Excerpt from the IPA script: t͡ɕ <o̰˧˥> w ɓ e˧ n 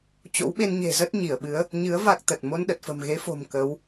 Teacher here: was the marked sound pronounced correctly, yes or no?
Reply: yes